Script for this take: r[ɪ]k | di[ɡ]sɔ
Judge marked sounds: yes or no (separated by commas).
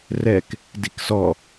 no, no